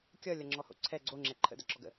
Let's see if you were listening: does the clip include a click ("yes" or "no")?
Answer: yes